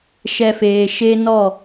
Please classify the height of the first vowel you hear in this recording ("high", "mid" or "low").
mid